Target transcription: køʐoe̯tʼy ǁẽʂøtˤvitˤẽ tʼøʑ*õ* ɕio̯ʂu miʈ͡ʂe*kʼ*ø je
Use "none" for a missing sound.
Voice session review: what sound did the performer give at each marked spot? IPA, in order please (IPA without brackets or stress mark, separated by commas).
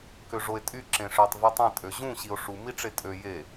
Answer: ũ, tʼ